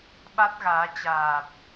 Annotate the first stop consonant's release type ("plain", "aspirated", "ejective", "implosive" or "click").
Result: implosive